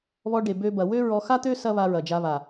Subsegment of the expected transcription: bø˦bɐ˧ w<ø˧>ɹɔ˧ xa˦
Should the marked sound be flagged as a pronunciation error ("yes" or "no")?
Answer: yes